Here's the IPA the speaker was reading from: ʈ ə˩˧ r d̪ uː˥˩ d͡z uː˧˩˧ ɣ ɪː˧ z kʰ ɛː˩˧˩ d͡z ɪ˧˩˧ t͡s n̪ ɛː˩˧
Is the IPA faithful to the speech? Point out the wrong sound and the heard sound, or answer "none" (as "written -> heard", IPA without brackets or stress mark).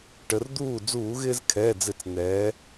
none